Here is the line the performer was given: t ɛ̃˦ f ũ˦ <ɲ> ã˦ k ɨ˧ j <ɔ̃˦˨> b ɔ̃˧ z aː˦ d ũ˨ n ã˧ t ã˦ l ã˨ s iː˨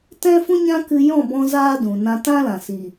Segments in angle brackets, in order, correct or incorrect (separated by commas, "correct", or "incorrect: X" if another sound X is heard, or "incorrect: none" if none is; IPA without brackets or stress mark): correct, correct